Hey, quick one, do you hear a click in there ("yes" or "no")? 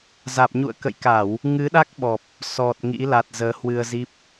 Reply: no